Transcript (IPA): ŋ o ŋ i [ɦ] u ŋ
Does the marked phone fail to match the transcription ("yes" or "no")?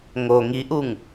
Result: yes